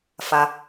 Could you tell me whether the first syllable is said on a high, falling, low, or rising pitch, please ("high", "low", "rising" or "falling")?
low